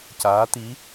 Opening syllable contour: rising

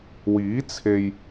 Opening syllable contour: rising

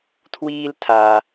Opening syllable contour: high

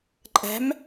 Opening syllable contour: rising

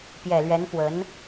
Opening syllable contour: low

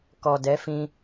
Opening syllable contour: low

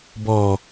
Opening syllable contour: low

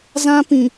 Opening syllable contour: high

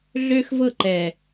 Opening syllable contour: high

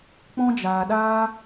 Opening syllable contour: high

